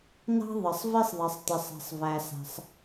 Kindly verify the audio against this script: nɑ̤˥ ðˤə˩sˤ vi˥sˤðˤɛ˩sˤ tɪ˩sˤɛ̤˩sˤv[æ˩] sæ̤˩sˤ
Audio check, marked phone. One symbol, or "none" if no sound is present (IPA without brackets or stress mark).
æ˩